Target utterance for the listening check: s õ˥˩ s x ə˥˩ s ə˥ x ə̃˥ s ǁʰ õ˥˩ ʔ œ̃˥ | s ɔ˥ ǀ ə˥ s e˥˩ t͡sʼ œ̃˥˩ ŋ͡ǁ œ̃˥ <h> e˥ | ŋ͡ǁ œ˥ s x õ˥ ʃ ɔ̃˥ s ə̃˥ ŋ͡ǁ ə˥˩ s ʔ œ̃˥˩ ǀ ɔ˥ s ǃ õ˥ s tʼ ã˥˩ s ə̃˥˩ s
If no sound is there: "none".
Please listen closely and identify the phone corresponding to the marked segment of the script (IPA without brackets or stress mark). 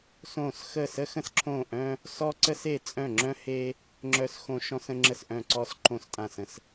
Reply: h